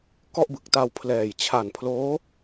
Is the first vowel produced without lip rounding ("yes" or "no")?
no